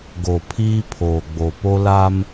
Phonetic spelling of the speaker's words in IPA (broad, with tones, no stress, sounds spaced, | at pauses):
ɡ o˨ pʰ iː˦ pʰ oː˨ ɡ͡b o˨ p o˦ l a˦ m